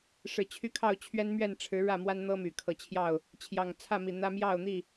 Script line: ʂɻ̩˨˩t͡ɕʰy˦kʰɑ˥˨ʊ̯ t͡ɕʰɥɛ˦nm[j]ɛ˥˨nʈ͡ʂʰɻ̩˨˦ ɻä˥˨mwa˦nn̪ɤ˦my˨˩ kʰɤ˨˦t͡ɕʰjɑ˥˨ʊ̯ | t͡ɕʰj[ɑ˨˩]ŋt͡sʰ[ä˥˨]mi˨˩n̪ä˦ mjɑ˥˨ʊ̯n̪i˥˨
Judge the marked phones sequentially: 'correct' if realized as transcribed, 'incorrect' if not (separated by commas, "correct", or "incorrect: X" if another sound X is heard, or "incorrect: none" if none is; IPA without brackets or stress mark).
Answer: incorrect: ɥ, correct, correct